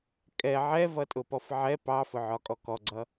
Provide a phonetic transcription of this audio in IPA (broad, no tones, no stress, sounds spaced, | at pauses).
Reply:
kʼ ɛ ʕ ɛ v ʌ tʼ ʊ p ɔ f ʕ ɛ p ɑ f ʊ ʕ ɒ kʼ ɔ k ɔ ɡ͡ǀ ʌ